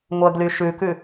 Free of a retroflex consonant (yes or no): yes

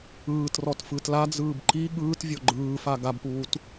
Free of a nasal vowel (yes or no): yes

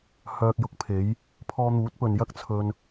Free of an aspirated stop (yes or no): no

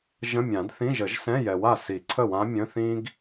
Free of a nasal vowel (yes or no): no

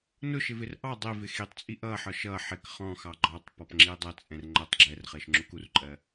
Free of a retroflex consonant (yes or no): yes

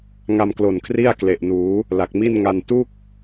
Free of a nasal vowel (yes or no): yes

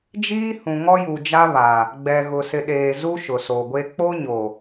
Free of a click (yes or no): yes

